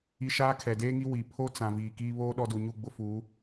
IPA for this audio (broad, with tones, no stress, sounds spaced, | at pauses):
i˦ ʃ aː˦ kʰ ɛ˨ d eː˦ ŋ i˦ w i˨ pʰ o˦ t͡s ã˨ v iː˨ k iː˦ β oː˦ ɗ ɔ˦ d u˨ ɲ u˦˨ ɡ͡b ʊ˦ f uː˨˦